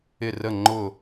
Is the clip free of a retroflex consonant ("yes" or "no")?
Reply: yes